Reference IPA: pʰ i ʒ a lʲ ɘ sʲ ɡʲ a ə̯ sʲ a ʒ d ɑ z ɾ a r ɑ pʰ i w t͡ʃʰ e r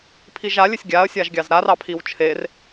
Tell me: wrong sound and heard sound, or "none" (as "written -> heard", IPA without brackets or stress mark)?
d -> ɡʲ